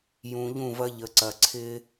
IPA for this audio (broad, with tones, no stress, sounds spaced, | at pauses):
j ũ˨ ʎ ũ˦˨ v ɐ˦ ʎ ə˨ ǀ ɐ˨ ǀʰ ɪ˦